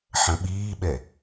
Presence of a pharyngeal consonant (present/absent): present